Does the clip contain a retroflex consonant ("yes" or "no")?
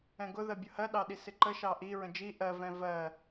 no